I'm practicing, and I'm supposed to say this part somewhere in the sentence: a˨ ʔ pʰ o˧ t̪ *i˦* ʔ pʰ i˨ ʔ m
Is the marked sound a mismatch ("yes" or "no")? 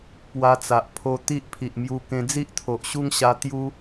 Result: no